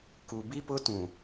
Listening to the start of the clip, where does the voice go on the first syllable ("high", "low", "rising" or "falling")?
low